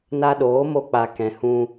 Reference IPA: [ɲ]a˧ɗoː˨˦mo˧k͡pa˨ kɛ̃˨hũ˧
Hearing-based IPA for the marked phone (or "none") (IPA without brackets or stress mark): n